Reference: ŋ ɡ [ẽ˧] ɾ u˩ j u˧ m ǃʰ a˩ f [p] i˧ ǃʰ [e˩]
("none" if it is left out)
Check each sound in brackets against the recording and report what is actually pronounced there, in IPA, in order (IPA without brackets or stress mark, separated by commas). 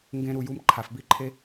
ẽ˧, b, e˧